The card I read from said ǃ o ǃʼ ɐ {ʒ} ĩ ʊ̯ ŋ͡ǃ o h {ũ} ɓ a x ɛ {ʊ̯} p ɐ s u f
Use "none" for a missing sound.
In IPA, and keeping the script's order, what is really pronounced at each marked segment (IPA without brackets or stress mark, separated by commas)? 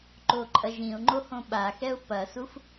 ʒ, õ, ʊ̯